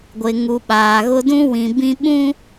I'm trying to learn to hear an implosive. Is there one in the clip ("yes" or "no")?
yes